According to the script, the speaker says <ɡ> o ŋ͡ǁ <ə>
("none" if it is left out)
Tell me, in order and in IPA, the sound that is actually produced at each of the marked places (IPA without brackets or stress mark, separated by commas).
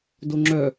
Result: d, œ